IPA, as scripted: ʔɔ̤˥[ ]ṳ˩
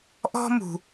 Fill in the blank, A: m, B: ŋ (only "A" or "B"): A